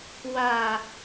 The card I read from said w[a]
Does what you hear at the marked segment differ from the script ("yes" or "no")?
no